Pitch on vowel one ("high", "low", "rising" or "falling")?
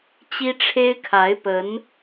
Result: high